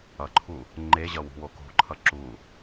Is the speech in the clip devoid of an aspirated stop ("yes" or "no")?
no